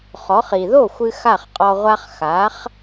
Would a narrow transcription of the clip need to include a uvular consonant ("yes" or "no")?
yes